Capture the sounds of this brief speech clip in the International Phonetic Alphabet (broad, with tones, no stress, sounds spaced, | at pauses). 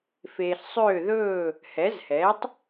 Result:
f eː˨ ɬ sˤ øː˥˩ ð ɵː˥˩ | h ɛ˩˥ z h ɛ˩˥ tˤ